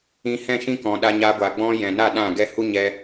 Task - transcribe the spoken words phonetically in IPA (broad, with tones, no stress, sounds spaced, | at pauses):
ĩ˧ h ɛ̃˦˨ ʃ ĩ˦ k ɔ̃˨ ɗ a˧ ɲ a˧ ɡʷ a˨ ɡ͡b ɔ̃˧ j ɛ̃˨ n a˦˨ ɗ ã˦˨ ɡ ɛ˧ h u˦ ɲ ɛ˧